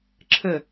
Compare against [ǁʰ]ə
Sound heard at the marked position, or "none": ǁʰ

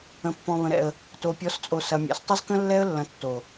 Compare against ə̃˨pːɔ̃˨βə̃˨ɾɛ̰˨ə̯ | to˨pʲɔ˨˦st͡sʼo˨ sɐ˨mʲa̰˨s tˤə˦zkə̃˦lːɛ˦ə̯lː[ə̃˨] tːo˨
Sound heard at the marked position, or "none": ɐ̃˨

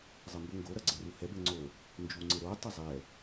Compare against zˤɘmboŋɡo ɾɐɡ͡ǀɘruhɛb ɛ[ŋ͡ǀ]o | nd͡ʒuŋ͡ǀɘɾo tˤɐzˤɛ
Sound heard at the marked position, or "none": ŋ͡ǀ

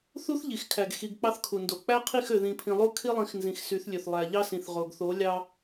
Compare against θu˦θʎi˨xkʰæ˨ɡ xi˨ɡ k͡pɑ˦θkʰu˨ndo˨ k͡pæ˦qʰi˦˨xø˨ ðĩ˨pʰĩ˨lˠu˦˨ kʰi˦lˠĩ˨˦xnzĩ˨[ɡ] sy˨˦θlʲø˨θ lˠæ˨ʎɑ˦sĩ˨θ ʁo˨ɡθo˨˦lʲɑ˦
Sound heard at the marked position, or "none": x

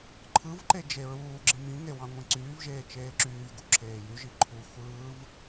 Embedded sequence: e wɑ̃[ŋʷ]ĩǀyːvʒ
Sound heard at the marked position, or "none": ŋʷ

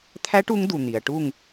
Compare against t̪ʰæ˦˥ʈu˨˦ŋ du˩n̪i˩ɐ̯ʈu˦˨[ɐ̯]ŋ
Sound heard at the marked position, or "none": none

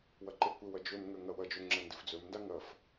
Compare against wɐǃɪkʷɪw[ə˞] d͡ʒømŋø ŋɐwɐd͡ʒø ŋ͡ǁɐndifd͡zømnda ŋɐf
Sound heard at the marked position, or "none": ɐ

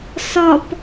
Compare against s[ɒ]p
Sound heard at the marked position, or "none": ɒ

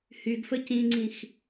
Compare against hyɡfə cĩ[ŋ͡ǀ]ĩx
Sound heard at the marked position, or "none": ŋ͡ǀ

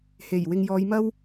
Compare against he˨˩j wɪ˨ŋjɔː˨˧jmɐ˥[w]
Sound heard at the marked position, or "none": w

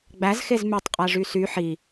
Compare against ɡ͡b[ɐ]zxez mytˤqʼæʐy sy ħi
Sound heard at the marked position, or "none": æ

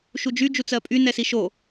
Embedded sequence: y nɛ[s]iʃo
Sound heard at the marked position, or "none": s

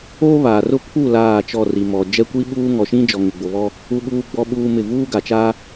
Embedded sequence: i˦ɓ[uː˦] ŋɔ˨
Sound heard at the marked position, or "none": uː˦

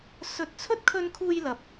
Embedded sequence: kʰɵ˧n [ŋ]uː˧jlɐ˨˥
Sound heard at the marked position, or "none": kʰ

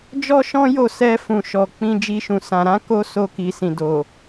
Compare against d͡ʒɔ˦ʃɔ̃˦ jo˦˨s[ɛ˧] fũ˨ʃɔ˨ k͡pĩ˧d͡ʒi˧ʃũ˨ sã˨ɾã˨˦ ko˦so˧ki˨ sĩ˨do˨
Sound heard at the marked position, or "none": ɛ˧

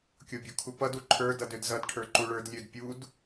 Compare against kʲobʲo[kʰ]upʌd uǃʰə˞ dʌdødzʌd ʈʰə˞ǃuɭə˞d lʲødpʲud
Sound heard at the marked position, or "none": kʰ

